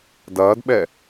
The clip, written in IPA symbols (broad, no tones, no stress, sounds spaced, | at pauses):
d ɐː d ɓ ɛ